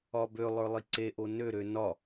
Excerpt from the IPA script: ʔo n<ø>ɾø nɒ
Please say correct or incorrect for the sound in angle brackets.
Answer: correct